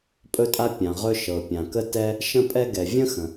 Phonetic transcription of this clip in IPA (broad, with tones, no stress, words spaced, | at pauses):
pʼɵ˥tʼa˥ pʲã˩ʁɵ˥ ʃɤ˩pʲã˩kə˥tɛ˥ | ʃə̃˥pʼɛ˥ɡɛ˩ vʲə̃˥ xə̃˩